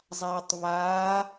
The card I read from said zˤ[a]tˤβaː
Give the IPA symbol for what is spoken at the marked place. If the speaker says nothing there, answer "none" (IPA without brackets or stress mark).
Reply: aː